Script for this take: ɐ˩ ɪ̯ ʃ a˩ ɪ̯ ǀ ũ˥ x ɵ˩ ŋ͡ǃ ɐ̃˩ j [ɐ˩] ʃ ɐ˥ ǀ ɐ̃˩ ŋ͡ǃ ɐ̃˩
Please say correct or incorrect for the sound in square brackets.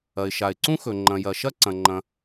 correct